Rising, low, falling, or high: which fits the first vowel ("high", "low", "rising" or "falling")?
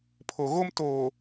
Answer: low